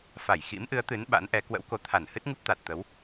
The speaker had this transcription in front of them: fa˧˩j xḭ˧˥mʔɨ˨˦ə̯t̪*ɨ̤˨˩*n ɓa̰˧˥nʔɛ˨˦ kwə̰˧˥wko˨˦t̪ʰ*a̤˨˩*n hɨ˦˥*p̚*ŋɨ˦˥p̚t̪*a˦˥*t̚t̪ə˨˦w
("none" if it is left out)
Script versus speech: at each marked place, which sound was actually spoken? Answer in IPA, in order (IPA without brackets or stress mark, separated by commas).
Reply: ɨ˨˦, a˧˩, t̚, a˨˩